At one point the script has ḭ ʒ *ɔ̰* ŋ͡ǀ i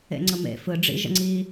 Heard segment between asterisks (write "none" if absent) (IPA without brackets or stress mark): ə̰